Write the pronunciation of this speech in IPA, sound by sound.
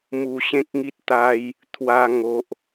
m u˨˩ ɕ ẽ˦ k̚ ŋ i˦ t̚ t̪ a˦ j | t̪ʰ w a˦ ŋ o˦ ʔ

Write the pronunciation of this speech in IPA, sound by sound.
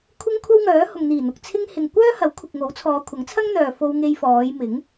kʷʰ ɪ˥ ŋ kʷʰ ɐ˥ w ŋ œː˨˥ h ʊ˨ ŋ n̪ iː˨˩ n̪ ʊ˨ k̚ t͡sʰ ɪ˥ ŋ h ɪ˨ ŋ kʷ œː˥ h ɐ˨˥ w kʷʰ ɪ˨ k̚ ŋ o˨˥ w t͡sʰ ɔː˨˧ kʷʰ ɐ˨˥ ŋ t͡sʰ ɐ˥ ŋ n̪ œː˨ f o˧ w ŋ e˧ j f ɔː˨˧ j m ɪ˨˥ ŋ

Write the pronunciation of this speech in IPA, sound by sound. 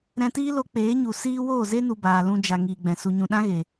ɾ ɛ̃˧ t iː˦ l o˧ k͡p eː˨˦ ɲ u˨ s iː˦ w oː˦˨ z e˦ n u˨ b aː˨ l ũ˧ d͡ʒ a˨ ŋ iː˨ ɡ͡b ɛ̃˨ s u˨ ɲ ũ˨ ɗ ã˦ ɣ e˨

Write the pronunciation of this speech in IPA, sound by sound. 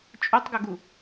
t͡ʃʼ o tˤ ɡ o ɡ u

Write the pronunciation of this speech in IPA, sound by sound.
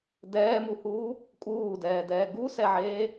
d ɛː m u h uː | kʼ uː d ɛː d ɛː ɡ u s ɛ ʕ eː

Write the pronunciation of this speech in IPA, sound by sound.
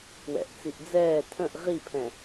w ɛ̰ ʔ t͡s i ʔ d͡z ɛː tʰ ə̃ ʔ ʁ i pʰ ɛ̃

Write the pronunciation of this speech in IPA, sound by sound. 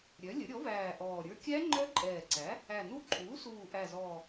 ɾʲ œ˩˥ lʲ ə˩˥ ɾʲ ɔ˩˥ v æː˨˩ ʔ ɔː˨˩ ɾʲ ə˞˦˥ kʲ æ˦˥ ŋ͡ǃ œ˦˥ ǃʼ ɛː˨˩ ǀ æ˩˥ | æ˨˩ n u˦˥ ǃʼ uː˩˥ s uː˨˩ ʔ æ˨˩ z ɔː˨˩

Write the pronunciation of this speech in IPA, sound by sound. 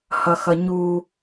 h ʌ x ʌ ɲ u

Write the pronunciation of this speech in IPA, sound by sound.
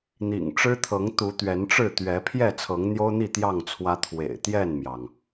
n̪ ḭ˨˩ ŋ ʈ͡ʂ ɻ̩˦ t̪ʰ ɤ˨˦ ŋ t̪ u˨˦ t̪ ɥ ɛ˨˦ n ʈ͡ʂ ɻ̩˥˨ t̪ ɥ ɛ˨˦ pʰ j ɛ˥˨ t͡sʰ ɤ˨˦ ŋ n̪ j o˦ ʊ̯ n̪ i˥˨ t̪ j ɑ˥˨ ŋ t͡sʰ w ä˦ t̪ʰ w ḛ˨˩ ɪ̯ t̪ j ɛ˥˨ n m j ɑ˩ ŋ

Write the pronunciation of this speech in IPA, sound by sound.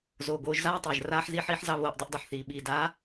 z oː˨ ɡ oː˧ ʒ z aː˦ tˤ ɛː˨ ʒ r aː˧ ħ z i˧ ħ iː˧ ħ z ɑ˧ β oː˨ ʔ dˤ i˧ ʔ dˤ o˨ ħ θ iː˨ ɓ iː˨ d aː˨˦

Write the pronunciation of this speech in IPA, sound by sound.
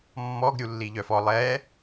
mː ɔ ɡ ɾʲ u lː i ʎ œ f ɔ lˠ ɛ

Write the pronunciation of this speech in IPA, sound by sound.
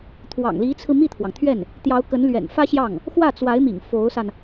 t̪ʰ w ɑ̰˨˩ ŋ l i˧˥ t͡sʰ ɹ̩˧ m i˥˩ t̪ʰ w ɑ˩ ŋ t̪ʰ ɥ ɛ˥˩ n | t̪ j ɑ˧˥ ʊ̯ k ə˧˥ n l ɥ ɛ̰˨˩ n f ä˥ ɕ j ɑ˥˩ ŋ | x w ä˥˩ t͡s w a˧˥ ɪ̯ m ḭ˨˩ ŋ f o˧˥ ʊ̯ s a˧ n

